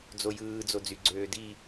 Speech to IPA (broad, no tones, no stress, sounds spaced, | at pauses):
d͡z o j ɯː d͡z o d͡z y ɡ͡ǀ øː d i